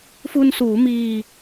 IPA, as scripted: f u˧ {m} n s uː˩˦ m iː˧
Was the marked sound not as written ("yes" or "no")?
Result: yes